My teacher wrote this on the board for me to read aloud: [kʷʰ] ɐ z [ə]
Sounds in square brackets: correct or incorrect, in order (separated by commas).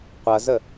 incorrect, correct